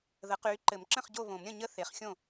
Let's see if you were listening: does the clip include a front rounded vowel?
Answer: yes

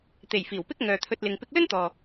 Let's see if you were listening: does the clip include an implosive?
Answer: no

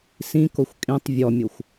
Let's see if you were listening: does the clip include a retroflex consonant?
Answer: no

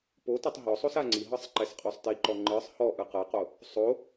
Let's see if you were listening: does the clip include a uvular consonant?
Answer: yes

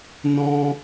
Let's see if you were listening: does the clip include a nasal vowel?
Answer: yes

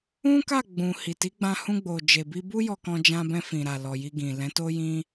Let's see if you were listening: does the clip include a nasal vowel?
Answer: yes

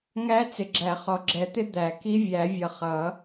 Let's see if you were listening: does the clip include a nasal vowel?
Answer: no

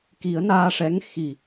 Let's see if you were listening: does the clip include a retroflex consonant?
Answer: yes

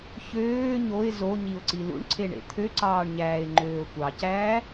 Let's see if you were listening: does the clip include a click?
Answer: yes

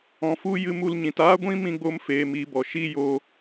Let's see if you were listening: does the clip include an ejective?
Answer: no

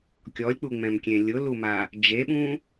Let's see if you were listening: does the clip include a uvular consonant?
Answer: no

